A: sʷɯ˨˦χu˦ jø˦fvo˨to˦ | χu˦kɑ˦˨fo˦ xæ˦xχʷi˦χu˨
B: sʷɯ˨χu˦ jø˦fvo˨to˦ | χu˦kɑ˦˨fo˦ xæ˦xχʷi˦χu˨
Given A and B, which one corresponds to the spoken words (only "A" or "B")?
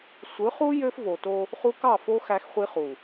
A